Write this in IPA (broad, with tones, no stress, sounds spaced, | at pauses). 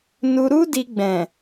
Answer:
n u˧ ɾ u˦ d i˧ ɡ͡b ɛ̃˨